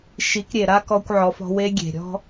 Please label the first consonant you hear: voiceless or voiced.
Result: voiceless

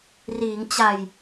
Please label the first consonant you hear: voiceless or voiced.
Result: voiced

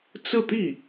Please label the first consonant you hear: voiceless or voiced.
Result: voiceless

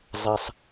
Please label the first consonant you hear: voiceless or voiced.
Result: voiced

